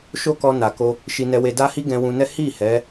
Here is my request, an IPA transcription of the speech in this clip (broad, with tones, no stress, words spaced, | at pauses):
ʃo˦kɔ˧na˨ko˧ | ʃi˧nɛ˧we˧ da˦hi˦ɡɛ̃˧ wũ˧nɛ˦ hi˦˨ hɛ˨˦